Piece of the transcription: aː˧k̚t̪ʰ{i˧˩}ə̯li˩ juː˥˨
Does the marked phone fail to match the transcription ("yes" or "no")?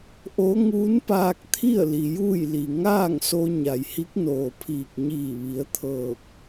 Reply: yes